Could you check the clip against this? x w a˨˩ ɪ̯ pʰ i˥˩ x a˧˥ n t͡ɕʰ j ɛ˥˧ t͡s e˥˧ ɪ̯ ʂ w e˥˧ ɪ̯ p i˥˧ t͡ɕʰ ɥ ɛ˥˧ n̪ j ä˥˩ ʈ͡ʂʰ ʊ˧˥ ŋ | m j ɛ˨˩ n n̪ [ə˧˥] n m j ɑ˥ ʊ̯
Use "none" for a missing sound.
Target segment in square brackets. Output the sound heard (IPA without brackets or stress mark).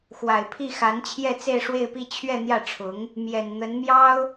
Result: ə˧˥